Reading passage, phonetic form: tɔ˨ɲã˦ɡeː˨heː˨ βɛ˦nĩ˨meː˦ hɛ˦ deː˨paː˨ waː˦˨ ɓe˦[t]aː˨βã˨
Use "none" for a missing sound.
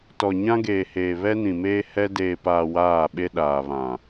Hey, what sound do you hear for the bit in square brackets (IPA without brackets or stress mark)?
ɗ